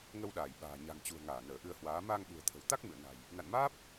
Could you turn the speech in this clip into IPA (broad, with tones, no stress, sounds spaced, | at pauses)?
ŋ ə˧ w ɗ aː˧˩ j ɓ a̤ː˨˩ ɲ a̤˨˩ ŋ t͡ɕ ṳ˨˩ ə̯ ŋ aː˧˩ n əː˧˩ ʔ ɨ˧ ə̯ h w aː˨˦ m aː˧ ŋ ɓ ṳ˨˩ ə̯ t̪ʰ ə̤˨˩ w t̪ a˦˥ k̚ m ɨ̰˧˨ ə̯ n a̤˨˩ j | n a̰˧˨ n m aː˦˥ p̚